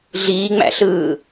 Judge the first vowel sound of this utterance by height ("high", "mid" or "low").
high